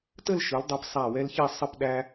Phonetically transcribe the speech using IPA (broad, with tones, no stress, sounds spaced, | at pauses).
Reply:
t ə˥˧ l ʃ ɯ˩˧ l dˤ i˩˧ p sˤ æ˧˩ w ɛ˥ l ç i˥˧ sˤ ə˥˧ p ɗ æ˥